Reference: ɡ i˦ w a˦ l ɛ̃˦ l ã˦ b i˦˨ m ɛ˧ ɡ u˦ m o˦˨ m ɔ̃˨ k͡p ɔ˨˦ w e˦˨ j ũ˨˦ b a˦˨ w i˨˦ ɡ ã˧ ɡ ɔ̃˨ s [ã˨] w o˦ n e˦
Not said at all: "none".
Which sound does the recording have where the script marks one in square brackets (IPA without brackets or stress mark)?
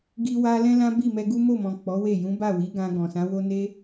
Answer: ã˨˦